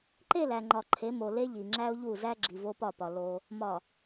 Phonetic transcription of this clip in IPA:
ǃ e˦˨ l æ˨ ŋ͡ǃ ɒ˨ ǃʰ e˨˦ m o˨ l e˦ ʎ i˨ ŋ͡ǁ æ˦ ʊ̯ ʎ u˦˨ z æ˦ ɡ͡ǁ i˨ v o˦ p ɒ˦˨ p ɒ˨ l o˦ | m ɒ˨

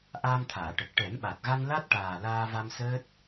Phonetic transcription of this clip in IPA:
ʔ aː˧ m t̪ʰ aː˨˩˨ ʈ ə˨˩ k̚ ʈ ɛ˨˩˦ m ɓ a˨˩ t̚ ɣ a˧ n l a˦˥ t̚ ʈ aː˨˩ l aː˧ v a˧ m s əː˦˥ t̚

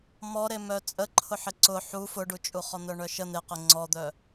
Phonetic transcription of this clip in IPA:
m ɔ ɾ e m œ t͡sʼ ə ǃʰ ʊ ħ ɪ ǀ ʊ ħ u f ʊ ɖ u t͡ʃʼ u χ ɔ n̪ œ ɳ œ ʃ ə n̪ e q ɪ ŋ͡ǀ ɔ d̪ œ

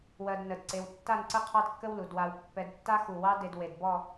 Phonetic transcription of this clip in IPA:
w ɜ˧ d n ə˧˩ d ǀ e˧ w tː a˥˧ n ǀ ə˥ qʰ ɑ˥ d kː ə˥ w l u˩˧ d w a˧ w pː ɛ˧ d tː a˥ x u˧˩ w ɑ˥ d e˧ d w e˧˩ d b ɔ˥˧

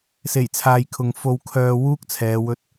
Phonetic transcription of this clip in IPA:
s e˨˩ j t͡sʰ aː˨ j kʰ ʊ˨ ŋ f o˧ w kʰ œː˧ w uː˥ k̚ t͡sʰ ɛː˨˧ w ɵ˧ t̚

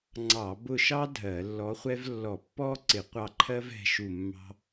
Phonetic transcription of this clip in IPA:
ŋ͡ǀ ɑ˧˩˧ b ʊ˦˨ ʃ ɑ˥ dʱ ɜ˧˩˧ lː ɔ˧˥ χʷ ɛ˥ v lː ɔ˧˩˧ pː ɔ˥ ǀ ɪ˧˩˧ qʷ ɑ˦˨ ǃʰ ɜ˥ v ɛ̤˧˥ ʃ u˦˨ mː ɑ̤˥

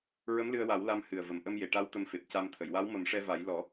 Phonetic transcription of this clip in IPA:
ɹ ə˧˥ m l ɨ˧ ə̯ w a˨˩˦ w l a˧ m h ɨ˨˩ ə̯ v ə˨˩ m ʔ ə˧ m j e˨˩˨ ʈ a˧˥ w t̪ ə˧ m f e˨˩ p̚ c a˧ m t̪ʰ ə˨˩˨ j w a˧˥ w m ə˨˩˦ m ʂ ɛ˧ v a˨˩˦ j l ɔ˨˩˦

